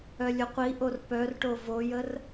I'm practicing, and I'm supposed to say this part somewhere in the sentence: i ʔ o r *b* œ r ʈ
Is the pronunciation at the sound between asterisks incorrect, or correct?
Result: incorrect